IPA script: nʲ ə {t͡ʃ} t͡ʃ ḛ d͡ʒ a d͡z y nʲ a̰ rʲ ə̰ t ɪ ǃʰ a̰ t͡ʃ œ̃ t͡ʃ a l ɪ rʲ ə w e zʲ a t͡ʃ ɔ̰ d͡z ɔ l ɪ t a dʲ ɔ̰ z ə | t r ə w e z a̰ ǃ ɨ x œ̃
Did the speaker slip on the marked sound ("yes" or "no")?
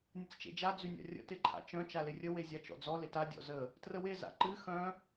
yes